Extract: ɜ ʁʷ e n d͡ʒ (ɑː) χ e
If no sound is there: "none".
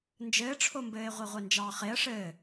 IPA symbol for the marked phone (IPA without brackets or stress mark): ɑː